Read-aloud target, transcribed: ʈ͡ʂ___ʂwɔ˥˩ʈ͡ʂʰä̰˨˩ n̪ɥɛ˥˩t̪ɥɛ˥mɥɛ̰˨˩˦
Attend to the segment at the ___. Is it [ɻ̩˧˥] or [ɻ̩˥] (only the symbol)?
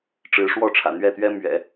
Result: ɻ̩˧˥